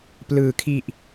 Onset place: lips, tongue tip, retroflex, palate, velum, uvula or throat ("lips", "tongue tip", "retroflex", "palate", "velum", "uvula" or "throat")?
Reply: lips